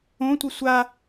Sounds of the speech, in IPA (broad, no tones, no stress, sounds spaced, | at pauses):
õ tʷ i sʷ a